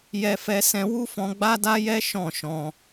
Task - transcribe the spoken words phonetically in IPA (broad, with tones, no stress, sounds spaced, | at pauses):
j ɛ˧ f ɛ˧ s ɛ̃˧ w u˦ f ɔ̃˧ ɡ͡b a˦ d a˦ j ɛ˦ ʃ ɔ̃˦˨ ʃ ɔ̃˧